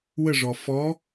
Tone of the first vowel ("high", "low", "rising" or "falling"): falling